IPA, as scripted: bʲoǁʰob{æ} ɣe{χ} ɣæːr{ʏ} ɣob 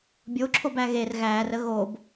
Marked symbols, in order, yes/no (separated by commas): yes, no, no